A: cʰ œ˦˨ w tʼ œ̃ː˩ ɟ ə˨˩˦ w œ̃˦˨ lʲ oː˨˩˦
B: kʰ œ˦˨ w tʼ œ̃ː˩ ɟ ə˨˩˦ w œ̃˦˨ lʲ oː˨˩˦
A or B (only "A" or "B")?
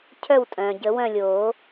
A